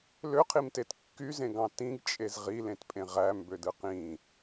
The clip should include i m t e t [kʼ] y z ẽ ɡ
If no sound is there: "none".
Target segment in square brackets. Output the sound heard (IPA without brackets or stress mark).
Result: kː